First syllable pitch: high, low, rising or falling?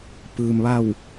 low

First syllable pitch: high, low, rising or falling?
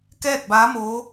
falling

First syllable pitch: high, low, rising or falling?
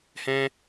high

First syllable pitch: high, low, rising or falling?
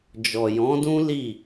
low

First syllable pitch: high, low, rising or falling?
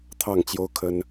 falling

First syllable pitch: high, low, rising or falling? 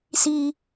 high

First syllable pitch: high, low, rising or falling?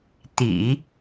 low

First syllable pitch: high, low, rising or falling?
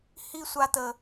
high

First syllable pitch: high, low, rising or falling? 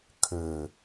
low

